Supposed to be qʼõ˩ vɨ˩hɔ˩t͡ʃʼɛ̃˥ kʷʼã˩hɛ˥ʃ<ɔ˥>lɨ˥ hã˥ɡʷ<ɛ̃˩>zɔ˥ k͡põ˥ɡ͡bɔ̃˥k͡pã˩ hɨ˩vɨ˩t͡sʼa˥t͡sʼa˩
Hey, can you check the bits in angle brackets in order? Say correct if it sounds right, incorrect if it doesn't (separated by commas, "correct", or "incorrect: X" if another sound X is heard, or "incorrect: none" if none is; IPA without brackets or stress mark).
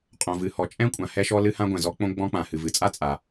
correct, correct